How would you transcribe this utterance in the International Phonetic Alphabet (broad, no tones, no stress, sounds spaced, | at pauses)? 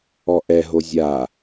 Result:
ɔ ʔ ɛ ɦ o zʲ a